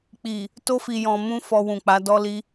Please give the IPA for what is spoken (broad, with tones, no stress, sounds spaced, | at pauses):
k͡p i˨ | t o˧ f i˨ j ɔ̃˨ m ũ˧ f ɔ˧ w ũ˨ k͡p a˨˦ d ɔ˦ l i˦